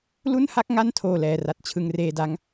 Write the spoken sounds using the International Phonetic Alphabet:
lu˥˩nha˥˩k̚ ŋa˥˩ntʰoː˨˩ lɛː˨˩ra˨˩t̚ t͡ɕʰɯ˧ŋreː˧da˦˥ŋ

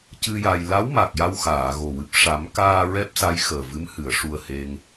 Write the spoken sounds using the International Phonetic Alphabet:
cɨ˧ ja˧j la˧˥wma˨˩k̚ ja˧wxaː˨˩˨ɣo˨˩wɨ˨˩p̚ ʂa˨˩˦mkaː˧ ɹɛ˦˥p̚sa˧˥j xəː˨˩vɨ˧˥mhɨ˨˩˨ə̯ ʂu˨˩ə̯ he˧ŋ

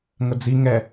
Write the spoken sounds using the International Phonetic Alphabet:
ŋəd͡zi ŋɛ

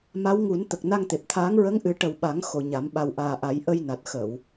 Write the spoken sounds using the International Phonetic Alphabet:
ma˧˥wŋu˨˩˦nt̪ə˨˩k̚ na˧ŋt̪e˨˩p̚t̪ʰaː˧˥ŋ ɹə˧˥ŋʔɨ˨˩˦ ʈə˨˩w ɓa˨˩˦ŋ xo˨˩ɲa˨˩˦m ɓa˨˩wʔaː˨˩ʔa˨˩˦jʔə˧j na˨˩t̚xə˨˩˨w

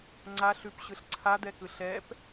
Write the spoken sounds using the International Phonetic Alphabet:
ŋ͡ǀa ɬʉpɕɯɬ ǀʰad̪ɛkɯ ɬɛp

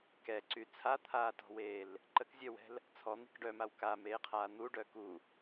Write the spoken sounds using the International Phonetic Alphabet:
kɛǀy t͡sʰat̪ʰaːtɔ̤weːl | ǃəkzʲœwɛ̤l | t͡sʰɔn̪i̤k ɖœmaw kameːqʰaː n̪uɖœ ku

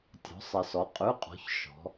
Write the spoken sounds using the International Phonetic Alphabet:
tʲɔ̤˨˥sˤɪ˧ sɔ˨˥qʼʉ˧˥˧qʼɔ̤˨˥ç ʃɔ̤˨˥

